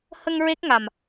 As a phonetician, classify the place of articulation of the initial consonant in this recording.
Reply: glottal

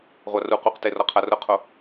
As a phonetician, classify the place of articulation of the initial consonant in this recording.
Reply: uvular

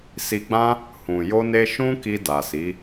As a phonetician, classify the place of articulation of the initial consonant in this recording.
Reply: alveolar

